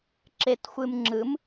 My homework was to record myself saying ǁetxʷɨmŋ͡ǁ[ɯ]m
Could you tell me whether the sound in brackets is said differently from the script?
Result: no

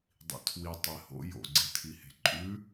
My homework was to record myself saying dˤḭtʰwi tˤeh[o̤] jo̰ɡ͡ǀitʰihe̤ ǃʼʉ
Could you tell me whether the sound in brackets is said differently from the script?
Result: yes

